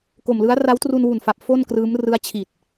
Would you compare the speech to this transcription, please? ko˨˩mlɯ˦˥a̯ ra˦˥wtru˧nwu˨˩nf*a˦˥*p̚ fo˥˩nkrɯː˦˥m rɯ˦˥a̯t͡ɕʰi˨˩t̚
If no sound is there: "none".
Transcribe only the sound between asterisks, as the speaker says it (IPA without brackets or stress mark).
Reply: a˨˩